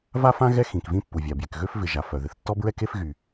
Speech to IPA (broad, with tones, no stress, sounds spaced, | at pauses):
v a˥ f ã˥ ɣ ɛ˥ x ĩ˩ k v ĩ˥ pː u˩ vʲ a˩ b j ɪ˩ k ɣ ø˥ f v ɪ˩ ʒ a˩ f œ˩ ð ɪ˩ θ tː ɔ˥ b ɹ ɛ˥ k e˥ f ɣ y˩